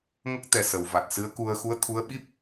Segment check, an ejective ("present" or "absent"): absent